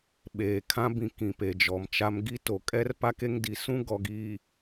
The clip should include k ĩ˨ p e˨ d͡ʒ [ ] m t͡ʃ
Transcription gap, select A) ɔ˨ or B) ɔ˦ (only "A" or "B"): A